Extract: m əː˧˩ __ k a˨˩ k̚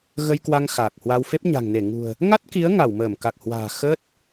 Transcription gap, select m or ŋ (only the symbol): m